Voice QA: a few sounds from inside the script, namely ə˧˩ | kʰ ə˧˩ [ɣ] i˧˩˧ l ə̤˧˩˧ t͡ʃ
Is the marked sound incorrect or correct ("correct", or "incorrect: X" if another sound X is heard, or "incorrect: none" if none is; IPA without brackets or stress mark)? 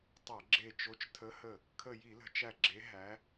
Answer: incorrect: j